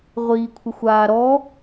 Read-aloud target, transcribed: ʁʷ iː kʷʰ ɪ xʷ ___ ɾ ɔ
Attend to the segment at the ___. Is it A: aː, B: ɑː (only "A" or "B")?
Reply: A